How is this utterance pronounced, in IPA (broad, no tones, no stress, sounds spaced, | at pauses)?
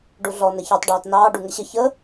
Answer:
ɖ u ɮ ɔ n ə ç ɑ tˤ ɖ ɑː t n ɑː ɖ u ŋ ə ɕ ə ç ə